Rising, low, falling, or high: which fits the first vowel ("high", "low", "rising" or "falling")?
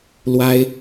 high